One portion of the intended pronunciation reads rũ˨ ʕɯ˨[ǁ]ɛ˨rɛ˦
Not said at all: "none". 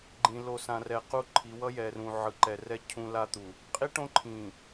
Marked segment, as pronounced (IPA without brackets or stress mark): ǃ